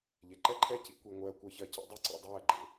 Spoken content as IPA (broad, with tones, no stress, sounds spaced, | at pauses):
ʎ e˨ ǃ ɛ˦˨ ǃʰ ɛ˦˨ c ḭ˦ kʷ i˧ ŋʷ ɜː˧ kʷ ɜ˧ ç ɜ˧ c ḛ˦ dˤ u˦ ǀ ḭ˧ dˤ ɜː˦˨ ɡ͡ǃ ḛ˨